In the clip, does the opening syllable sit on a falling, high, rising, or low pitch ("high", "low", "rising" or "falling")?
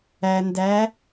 low